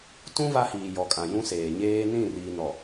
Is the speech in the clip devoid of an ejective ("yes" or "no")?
no